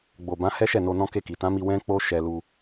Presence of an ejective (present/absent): absent